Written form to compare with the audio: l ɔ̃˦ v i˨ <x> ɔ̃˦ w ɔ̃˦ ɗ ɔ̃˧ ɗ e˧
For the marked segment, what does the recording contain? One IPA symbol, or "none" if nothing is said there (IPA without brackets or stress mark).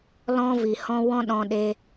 h